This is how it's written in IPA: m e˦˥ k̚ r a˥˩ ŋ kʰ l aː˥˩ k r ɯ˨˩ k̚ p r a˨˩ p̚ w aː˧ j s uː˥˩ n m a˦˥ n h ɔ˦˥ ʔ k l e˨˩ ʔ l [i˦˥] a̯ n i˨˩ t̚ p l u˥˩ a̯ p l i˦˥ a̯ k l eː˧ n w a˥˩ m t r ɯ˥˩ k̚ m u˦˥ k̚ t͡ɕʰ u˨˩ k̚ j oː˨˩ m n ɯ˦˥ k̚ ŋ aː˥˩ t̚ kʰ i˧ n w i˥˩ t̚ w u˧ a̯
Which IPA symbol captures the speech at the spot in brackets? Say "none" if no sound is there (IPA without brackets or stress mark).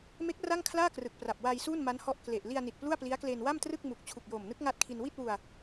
i˧